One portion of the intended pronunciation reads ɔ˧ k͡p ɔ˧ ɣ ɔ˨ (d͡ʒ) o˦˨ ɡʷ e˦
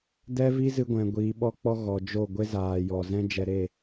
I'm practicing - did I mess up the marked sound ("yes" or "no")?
no